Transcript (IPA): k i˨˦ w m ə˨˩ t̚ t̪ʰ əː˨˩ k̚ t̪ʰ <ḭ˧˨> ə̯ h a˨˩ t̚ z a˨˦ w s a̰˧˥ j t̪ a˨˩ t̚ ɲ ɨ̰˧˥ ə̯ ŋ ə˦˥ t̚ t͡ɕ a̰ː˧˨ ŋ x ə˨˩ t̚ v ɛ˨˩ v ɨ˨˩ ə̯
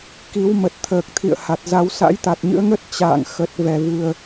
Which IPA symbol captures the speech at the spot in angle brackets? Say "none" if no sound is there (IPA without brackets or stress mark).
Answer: ḭ˧˨